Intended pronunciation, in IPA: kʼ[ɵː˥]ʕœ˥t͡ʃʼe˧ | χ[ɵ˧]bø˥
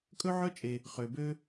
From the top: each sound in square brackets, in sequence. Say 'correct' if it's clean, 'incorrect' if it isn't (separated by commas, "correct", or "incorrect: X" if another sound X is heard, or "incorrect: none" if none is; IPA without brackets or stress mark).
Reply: incorrect: ɵ˥, incorrect: ø˧